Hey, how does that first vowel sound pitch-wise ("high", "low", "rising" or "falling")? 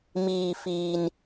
low